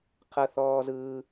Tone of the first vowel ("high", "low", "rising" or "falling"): high